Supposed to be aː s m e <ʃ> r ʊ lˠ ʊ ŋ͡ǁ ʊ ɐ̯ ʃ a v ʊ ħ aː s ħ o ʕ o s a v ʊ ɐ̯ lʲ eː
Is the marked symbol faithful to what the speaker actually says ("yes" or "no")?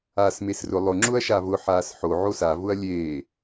no